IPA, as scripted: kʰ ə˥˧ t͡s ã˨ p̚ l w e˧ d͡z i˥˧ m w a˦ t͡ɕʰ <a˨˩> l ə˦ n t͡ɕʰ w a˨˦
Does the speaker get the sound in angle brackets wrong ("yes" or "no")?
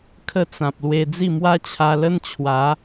yes